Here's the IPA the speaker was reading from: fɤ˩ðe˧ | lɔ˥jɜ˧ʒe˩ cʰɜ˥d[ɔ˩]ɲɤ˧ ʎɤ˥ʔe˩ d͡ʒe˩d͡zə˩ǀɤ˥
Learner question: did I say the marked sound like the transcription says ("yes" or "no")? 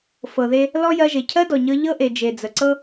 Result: yes